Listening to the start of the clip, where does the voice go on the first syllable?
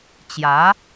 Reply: rising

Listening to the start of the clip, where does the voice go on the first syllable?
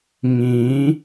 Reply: rising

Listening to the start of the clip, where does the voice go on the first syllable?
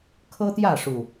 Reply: high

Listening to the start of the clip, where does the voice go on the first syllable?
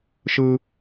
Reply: high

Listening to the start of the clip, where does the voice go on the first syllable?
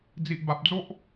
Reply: low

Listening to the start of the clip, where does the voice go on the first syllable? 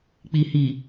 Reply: low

